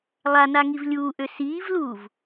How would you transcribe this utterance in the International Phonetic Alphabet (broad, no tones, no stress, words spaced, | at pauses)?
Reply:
lˠanaŋiv lʲuːʔø siːvluːv